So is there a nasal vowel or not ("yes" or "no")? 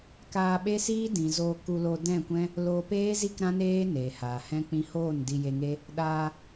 yes